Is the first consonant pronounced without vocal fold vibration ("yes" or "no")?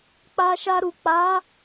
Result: yes